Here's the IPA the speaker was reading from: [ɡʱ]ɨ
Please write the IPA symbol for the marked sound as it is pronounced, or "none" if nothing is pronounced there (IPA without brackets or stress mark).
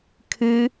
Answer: kʰ